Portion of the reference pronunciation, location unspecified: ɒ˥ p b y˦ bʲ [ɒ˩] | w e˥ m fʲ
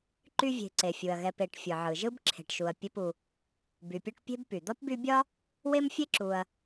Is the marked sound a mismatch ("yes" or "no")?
yes